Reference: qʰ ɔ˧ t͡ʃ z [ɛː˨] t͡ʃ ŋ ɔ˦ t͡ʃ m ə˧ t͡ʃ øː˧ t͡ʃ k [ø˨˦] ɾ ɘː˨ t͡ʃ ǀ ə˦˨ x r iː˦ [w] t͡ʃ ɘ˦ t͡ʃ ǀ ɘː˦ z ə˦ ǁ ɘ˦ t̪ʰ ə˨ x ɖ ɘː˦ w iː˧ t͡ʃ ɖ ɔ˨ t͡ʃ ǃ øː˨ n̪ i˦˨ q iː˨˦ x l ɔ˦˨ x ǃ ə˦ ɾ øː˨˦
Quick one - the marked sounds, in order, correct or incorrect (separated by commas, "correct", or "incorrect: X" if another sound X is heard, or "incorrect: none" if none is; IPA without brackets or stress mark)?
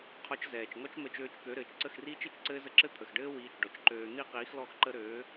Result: correct, correct, incorrect: none